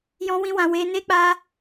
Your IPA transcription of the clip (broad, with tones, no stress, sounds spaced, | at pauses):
j ɔ̃˧ w ĩ˧ w ã˧ w e˧ n e˦ k͡p a˦